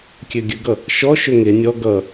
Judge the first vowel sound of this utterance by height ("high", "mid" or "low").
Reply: mid